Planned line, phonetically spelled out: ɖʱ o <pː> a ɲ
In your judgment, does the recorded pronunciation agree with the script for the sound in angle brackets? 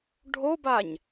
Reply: no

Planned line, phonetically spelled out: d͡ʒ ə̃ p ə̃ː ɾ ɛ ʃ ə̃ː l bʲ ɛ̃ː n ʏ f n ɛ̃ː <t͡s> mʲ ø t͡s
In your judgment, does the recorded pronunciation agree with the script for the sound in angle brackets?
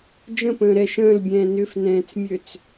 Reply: yes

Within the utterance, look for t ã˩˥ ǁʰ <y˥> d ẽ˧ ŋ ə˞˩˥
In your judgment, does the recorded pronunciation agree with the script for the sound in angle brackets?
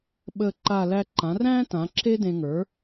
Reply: no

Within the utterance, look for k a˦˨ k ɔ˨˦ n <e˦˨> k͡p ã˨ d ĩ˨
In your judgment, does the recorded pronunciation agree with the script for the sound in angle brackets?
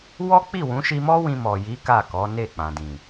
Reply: yes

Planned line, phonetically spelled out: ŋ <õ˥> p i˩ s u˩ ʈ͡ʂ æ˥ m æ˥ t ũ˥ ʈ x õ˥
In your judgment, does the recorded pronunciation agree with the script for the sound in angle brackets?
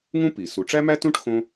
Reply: no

